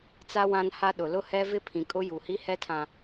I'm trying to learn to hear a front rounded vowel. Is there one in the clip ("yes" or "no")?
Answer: no